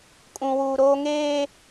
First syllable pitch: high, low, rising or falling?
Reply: high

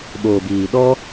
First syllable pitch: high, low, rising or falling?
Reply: low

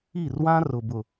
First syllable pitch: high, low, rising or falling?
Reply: falling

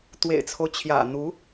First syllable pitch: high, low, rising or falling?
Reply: low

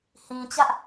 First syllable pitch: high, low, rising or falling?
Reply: low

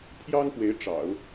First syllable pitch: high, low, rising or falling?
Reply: high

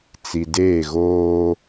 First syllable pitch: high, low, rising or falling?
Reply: low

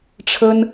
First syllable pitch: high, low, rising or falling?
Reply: high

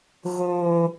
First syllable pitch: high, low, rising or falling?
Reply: low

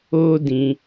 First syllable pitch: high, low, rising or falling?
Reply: high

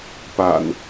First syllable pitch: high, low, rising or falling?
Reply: low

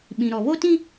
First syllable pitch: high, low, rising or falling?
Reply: low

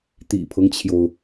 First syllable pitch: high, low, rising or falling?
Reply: low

